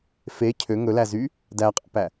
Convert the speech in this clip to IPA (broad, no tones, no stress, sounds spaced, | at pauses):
f e cʰ ø ŋ ɵ l æ z y | d æ qʼ æ̰ p æ